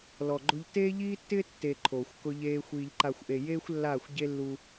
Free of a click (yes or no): no